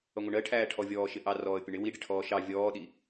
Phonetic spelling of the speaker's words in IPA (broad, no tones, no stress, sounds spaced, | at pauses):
ʌ ŋʷ ɪ ɳ ɜ ʈʰ æː ʈʰ ɔ vʲ ɔː ʃ ɪ ʔ ɑ r ɔː ə̯ pʲ ʊ ɳ ɪ w i ɖ ɪ ʈʰ ɔː ʃ ɑ vʲ ɔː ɗ i